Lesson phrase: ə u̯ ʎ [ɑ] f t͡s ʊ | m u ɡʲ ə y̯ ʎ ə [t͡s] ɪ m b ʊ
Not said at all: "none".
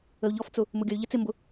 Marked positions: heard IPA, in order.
ɔ, t͡s

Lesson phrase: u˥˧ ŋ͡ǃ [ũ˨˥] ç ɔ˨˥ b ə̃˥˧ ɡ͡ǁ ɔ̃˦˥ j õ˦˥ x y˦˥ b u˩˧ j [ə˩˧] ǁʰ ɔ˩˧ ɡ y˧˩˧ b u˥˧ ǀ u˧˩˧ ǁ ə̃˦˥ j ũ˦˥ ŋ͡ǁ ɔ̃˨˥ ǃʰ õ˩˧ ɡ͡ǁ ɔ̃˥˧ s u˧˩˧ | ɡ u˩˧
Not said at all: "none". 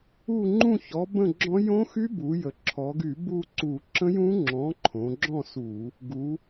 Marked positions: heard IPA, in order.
ũ˥˧, ə˩˧

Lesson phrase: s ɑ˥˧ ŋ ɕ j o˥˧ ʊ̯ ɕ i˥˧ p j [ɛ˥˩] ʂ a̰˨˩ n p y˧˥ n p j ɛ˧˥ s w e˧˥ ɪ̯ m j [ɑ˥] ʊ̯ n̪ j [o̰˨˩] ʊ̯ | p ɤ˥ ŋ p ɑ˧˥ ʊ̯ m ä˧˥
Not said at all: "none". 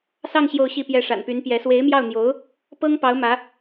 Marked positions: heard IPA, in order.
ɛ˥˩, ɑ˥˩, o˧˥

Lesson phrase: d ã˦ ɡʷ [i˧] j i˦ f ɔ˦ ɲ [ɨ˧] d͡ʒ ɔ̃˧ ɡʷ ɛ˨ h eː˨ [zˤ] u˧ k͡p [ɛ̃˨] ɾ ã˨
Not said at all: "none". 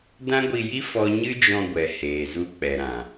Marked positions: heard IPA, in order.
i˧, ɨ˦, z, ɛ˨

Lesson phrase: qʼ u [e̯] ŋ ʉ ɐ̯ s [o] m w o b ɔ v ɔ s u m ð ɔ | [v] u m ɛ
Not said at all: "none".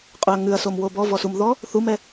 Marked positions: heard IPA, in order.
ɐ̯, o, θ

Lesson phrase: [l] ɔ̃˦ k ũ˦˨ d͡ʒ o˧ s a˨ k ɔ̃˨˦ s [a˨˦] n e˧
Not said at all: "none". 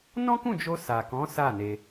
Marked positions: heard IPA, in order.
n, a˦˨

